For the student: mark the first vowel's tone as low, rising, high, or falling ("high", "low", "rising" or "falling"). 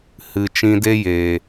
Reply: low